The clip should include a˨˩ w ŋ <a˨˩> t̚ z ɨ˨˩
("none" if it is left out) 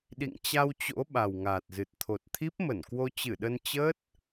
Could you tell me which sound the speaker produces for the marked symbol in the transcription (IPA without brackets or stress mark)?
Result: aː˨˩